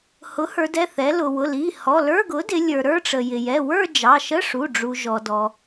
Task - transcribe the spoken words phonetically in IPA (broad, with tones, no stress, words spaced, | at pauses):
hʊ˩˥hə˞˩˧dɛ˩˧˩ θɛ˩˧ lʊ˩wʊ˩˧˩li˩˧˩ hɔ˩˧˩lə˞˧˥˧ ɡʊ˩˥dɪ˩˧ lʲə˞˩ ɾə˞˥˧ʈ͡ʂə˩jɪ˩ jɛ˩˧˩wə˞˥˧ d͡ʒɑ˩˧˩ʃə˧˥˧ʂu˩˧˩ ɖ͡ʐu˩ ʒɔ˩dɔ˩